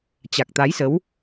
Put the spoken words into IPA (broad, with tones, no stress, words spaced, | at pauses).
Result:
t͡ɕa˨˩k̚t̪a˨˦jsə˨˦w